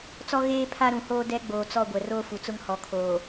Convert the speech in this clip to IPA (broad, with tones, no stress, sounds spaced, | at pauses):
t͡s ɔ˦ ɣ eː˦ pʰ a˦ ɾ ũ˨ h oː˦ d ɛ˦ ɡ͡b oː˨ t͡s ɔ˦˨ ɡʷ ɛ˨ r oː˦ f u˨ t͡s ʊ˦ ŋ h ɔ˨ kʰ oː˨